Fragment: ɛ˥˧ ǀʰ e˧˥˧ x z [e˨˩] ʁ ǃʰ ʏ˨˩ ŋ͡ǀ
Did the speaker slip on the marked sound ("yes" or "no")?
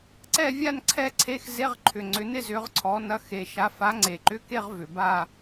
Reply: yes